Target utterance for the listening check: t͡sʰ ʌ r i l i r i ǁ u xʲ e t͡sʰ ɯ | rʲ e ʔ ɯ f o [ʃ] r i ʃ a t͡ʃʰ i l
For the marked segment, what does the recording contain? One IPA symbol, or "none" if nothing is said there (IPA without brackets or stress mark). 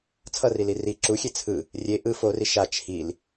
none